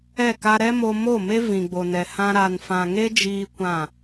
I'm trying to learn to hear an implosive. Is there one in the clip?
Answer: no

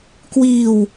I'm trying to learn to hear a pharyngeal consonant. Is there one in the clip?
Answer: no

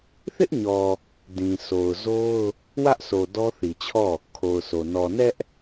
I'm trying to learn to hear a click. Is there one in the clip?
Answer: no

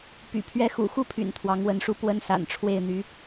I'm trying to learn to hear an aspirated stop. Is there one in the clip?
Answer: yes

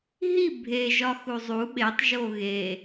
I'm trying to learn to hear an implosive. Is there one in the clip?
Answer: yes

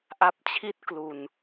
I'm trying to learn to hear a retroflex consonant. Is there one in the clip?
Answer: no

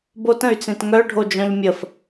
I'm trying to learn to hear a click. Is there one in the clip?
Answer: no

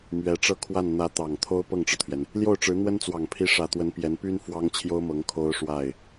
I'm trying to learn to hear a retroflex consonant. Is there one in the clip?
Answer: yes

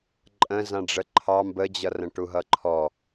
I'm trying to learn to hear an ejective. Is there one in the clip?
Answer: yes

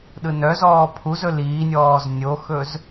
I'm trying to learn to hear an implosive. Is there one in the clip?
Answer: yes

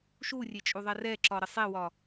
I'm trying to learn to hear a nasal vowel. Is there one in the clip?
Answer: no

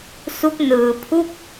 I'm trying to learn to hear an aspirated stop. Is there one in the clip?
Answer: yes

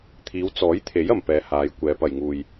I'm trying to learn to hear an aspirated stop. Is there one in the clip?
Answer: yes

